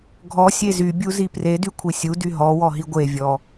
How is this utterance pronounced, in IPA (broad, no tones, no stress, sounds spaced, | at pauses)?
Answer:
ɡʱ ɔ sʲ e z y bʲ u z i p r e d y kʷʰ i sʲ u d y ɦ ɔ w ɔ ɦ i ɡʷ e vʲ ɔ